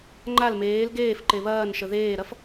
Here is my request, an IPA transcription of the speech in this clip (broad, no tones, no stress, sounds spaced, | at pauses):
ŋ͡ǃ a l m eː l ɡ eː f ǃ e β ɐː n ʃ ə ð eː ɾ ɐ f